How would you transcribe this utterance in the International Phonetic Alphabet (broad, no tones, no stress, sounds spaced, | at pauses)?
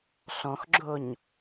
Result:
ɬ ɔ̃ x ɡ͡ǁ o ɲ